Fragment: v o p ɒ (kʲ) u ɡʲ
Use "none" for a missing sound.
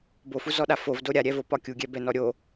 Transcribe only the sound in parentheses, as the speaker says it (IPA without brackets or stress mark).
kʲ